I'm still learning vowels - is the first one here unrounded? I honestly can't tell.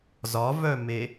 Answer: no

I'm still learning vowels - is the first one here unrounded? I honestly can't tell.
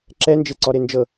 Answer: yes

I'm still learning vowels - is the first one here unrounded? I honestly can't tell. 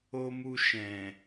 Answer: no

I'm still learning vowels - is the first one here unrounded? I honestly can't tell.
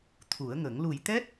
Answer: no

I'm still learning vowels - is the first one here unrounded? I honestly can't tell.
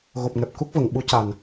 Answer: no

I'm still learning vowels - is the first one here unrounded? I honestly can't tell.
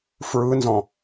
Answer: yes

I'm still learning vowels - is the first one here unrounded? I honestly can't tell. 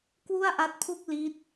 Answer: no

